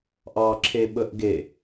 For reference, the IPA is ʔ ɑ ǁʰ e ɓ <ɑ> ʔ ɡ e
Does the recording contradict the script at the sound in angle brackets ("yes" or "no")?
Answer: yes